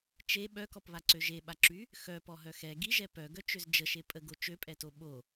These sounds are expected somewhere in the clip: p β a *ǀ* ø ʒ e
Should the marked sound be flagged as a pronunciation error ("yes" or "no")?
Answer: no